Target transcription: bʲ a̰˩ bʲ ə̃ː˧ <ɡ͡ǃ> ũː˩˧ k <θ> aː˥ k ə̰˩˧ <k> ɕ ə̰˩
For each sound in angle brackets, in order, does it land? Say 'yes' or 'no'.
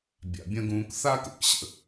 no, yes, yes

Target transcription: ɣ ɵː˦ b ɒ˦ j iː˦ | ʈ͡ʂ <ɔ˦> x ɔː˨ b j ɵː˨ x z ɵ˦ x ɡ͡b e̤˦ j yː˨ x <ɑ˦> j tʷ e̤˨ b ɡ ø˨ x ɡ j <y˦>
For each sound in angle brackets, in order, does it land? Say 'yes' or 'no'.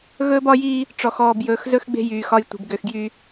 no, no, yes

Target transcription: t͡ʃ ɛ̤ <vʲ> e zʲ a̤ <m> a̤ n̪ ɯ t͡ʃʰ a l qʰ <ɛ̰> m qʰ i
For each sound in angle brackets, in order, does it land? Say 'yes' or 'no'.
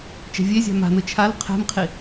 yes, yes, no

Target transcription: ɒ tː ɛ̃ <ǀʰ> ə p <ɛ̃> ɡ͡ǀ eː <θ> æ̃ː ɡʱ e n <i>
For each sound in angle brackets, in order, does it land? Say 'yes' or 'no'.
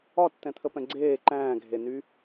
no, yes, no, no

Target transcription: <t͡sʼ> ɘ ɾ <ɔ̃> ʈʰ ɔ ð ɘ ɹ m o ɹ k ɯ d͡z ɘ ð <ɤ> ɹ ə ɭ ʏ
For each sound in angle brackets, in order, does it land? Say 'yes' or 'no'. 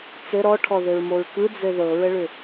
no, no, yes

